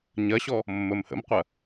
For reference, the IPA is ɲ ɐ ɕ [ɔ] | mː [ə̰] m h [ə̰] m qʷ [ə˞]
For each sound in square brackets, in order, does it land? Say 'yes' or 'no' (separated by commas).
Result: yes, no, yes, no